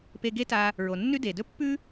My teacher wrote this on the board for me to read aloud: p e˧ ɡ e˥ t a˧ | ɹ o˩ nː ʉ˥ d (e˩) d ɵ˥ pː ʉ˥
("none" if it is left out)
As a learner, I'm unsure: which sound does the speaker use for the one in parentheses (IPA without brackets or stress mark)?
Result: e˩